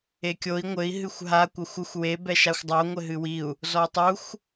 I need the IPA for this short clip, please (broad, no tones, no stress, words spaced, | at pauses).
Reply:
ekʲoi̯ ŋʷɘi̯ ɦɨxʷɦa kʷɐxʷuxʷ we bɛʃaxʷdˤo ŋʷɘɦɨwiu̯ | zɔu̯tˤuxʷ